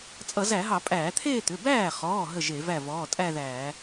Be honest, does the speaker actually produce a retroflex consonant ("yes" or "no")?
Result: no